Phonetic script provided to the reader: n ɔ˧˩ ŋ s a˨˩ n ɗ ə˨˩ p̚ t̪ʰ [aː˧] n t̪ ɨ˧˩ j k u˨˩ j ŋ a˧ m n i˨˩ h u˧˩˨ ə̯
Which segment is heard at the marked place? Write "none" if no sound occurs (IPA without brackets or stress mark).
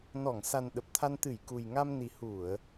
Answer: a˧